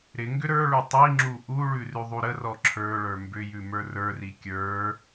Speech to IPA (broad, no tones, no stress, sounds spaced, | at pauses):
ɾ ɪ ŋ ɡ ʏ ɾ ə˞ ɭ ʉ tˤ i ŋ͡ǁ u ʔ u ɭ ʉ r ʉ ðˤ u ɾ ə r ɔ ǁʰ ə˞ ɭ ə˞ m b ʏ j ʉ m ə˞ r ə˞ r i kʲ ə˞